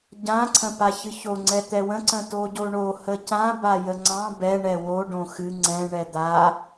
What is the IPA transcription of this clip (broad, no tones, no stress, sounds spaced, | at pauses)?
ɟ ã ǀʰ ə̃ p a ç ɨ ç o ŋ͡ǀ ɛ t̪ ɛ w ə̃ ǀ ə̃ t o ɟ o ɳ o h ə c ã b a j ə ŋ͡ǀ ɑ̃ b ɛ ɳ ɛ w o ɖ õ x ɨ ŋ͡ǀ ɛ̃ ɳ ɛ d̪ a